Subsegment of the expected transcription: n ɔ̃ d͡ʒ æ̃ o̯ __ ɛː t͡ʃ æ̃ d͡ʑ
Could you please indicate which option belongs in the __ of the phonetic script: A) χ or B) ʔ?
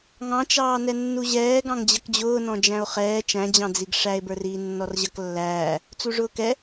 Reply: A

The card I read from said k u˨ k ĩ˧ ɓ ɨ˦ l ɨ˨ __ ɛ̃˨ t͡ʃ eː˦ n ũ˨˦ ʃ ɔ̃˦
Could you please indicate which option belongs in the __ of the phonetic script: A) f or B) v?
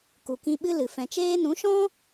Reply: A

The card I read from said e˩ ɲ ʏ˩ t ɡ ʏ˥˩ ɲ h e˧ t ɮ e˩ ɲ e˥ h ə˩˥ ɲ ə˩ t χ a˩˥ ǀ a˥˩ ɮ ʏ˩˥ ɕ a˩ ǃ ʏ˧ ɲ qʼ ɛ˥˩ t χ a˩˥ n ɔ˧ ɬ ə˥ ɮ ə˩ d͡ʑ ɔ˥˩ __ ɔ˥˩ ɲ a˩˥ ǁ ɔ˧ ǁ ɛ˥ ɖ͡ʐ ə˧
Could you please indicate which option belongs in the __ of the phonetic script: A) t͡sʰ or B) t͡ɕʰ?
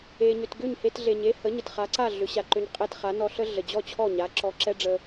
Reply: B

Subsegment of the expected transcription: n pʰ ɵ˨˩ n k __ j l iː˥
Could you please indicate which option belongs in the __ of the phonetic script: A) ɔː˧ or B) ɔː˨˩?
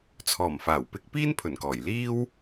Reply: B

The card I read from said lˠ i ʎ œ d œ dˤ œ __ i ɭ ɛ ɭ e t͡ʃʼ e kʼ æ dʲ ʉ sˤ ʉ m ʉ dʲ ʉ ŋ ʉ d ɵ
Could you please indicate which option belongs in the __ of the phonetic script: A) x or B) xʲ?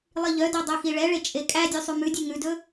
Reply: A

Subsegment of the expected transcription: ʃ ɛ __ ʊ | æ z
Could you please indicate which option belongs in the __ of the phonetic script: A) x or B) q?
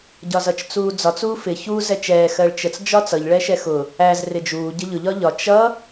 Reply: A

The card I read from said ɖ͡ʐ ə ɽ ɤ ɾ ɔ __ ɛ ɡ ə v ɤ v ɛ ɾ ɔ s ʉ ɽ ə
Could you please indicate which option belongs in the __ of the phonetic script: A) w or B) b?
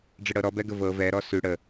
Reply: B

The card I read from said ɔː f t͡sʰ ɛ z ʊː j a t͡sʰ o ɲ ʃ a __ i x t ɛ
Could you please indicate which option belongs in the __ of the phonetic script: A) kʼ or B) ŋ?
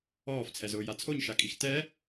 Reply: A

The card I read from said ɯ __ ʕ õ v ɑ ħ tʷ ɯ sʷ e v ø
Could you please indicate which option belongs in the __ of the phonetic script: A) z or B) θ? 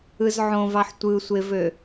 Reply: A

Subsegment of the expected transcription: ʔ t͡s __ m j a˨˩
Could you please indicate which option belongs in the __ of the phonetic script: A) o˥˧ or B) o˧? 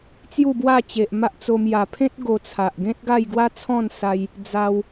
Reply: B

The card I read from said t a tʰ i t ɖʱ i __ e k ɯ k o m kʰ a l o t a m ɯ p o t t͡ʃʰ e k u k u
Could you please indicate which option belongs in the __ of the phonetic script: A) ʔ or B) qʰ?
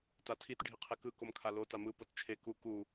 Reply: B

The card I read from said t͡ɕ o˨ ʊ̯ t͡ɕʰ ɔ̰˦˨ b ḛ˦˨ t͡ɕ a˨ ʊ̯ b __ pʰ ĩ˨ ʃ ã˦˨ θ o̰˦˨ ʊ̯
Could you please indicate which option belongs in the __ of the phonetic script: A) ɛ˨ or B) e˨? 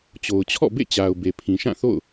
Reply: B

